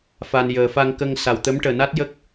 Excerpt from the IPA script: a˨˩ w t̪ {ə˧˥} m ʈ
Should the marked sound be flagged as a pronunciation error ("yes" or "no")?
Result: no